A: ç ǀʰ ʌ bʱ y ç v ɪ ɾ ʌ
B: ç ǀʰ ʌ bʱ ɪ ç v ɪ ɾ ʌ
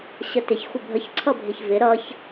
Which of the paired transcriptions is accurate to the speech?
B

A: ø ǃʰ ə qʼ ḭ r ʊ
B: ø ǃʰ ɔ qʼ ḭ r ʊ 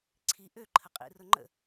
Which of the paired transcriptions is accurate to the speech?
A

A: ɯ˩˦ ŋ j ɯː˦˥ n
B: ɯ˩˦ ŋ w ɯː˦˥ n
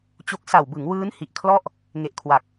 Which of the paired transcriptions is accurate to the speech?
B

